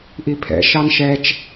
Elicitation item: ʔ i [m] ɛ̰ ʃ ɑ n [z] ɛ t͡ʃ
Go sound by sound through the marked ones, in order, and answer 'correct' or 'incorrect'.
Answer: incorrect: pʰ, incorrect: ʃ

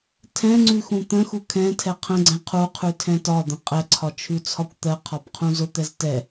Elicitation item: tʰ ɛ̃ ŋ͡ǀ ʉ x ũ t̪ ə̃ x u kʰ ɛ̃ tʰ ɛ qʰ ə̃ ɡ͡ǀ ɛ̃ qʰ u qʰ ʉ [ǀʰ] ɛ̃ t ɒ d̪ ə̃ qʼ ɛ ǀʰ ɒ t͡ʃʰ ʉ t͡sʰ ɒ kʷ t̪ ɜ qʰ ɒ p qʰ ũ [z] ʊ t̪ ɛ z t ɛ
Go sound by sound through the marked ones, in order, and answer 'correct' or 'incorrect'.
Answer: incorrect: tʰ, correct

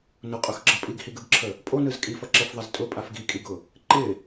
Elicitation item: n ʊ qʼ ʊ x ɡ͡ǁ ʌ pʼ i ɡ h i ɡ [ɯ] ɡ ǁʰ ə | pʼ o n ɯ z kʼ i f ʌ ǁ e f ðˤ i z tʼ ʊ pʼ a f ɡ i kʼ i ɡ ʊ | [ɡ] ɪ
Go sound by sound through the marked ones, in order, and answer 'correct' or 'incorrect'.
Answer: correct, incorrect: ǃ

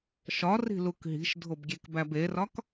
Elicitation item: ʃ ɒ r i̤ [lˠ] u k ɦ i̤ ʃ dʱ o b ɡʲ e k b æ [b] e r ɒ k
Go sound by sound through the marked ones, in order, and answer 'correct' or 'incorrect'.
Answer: incorrect: l, correct

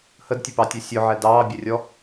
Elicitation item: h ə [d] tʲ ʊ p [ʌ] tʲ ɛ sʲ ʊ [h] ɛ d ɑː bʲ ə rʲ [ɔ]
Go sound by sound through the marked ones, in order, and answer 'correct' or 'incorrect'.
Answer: correct, incorrect: ɑ, incorrect: ʕ, correct

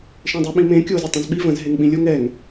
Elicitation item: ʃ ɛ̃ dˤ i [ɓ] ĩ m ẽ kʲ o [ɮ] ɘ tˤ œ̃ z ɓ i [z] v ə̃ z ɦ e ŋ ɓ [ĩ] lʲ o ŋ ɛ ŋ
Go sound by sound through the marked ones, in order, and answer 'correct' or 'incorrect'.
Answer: correct, incorrect: z, incorrect: none, correct

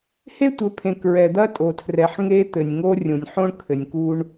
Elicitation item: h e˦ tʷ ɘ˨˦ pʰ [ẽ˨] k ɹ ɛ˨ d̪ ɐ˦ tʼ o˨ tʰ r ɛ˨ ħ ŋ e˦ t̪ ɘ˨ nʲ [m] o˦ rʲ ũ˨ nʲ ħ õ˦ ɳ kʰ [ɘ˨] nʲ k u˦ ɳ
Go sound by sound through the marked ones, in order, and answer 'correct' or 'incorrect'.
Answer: correct, incorrect: ŋ, correct

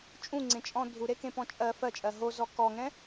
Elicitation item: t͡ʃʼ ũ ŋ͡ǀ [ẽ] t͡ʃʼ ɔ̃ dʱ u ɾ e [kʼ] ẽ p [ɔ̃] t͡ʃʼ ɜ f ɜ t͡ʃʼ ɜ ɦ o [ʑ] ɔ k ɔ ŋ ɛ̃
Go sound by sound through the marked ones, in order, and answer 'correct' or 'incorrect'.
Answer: correct, incorrect: k, correct, incorrect: z

